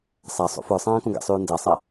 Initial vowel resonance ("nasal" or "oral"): oral